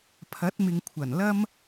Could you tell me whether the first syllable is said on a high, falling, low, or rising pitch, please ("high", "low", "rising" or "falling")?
rising